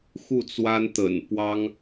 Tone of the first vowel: falling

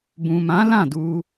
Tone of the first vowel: low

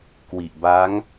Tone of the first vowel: low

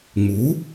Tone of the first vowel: rising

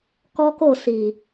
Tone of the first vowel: high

